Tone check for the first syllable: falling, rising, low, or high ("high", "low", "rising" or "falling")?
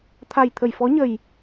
low